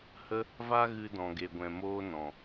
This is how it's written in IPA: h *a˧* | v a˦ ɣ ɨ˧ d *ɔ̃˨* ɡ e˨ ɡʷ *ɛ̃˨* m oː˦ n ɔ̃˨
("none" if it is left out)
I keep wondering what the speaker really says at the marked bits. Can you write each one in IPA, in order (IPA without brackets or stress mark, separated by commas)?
ə˧, ɔ̃˨, ɛ̃˨